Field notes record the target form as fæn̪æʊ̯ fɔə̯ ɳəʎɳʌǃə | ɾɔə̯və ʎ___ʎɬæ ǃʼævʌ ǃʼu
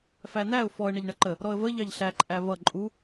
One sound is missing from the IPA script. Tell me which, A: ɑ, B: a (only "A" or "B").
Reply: A